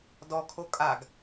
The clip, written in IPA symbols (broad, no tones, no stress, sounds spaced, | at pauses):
d ɔ kʰ o kʼ a ɡ